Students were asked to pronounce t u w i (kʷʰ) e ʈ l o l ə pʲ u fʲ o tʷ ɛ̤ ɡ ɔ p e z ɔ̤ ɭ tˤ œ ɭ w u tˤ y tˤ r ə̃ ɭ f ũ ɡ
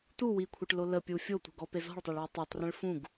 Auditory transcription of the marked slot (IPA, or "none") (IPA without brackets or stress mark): kʷʰ